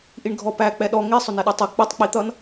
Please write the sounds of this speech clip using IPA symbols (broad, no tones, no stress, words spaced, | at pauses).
ʔiɳɡʱɔpæ k͡pɛɗɔ ŋi sˤʊnɛɗutˤi k͡pɪtˤ k͡pit̪ʌn